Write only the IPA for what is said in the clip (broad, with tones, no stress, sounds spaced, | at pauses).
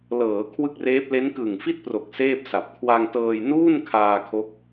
l ɤː˩˦ kʰ w ɯ˥˩ k̚ r eː˦˥ p̚ l e˦˥ n k ɯ˨˩ ŋ f i˥˩ t̚ p r o˨˩ k̚ s eː˥˩ p̚ s a˨˩ p̚ kʰ w a˧ ŋ t ɤː˧ j n uː˥˩ n kʰ aː˧ kʰ o˦˥ k̚